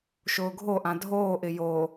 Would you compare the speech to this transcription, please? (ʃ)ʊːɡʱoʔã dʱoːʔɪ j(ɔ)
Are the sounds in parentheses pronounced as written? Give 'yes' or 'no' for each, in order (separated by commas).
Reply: yes, no